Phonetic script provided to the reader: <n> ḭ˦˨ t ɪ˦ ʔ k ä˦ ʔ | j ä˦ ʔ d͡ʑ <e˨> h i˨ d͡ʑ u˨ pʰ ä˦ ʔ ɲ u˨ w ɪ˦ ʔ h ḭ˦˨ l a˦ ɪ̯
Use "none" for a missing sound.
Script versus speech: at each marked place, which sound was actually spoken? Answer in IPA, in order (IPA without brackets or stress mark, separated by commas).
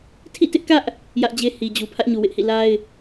tʰ, e˦